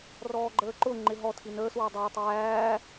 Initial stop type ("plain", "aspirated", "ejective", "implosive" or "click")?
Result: click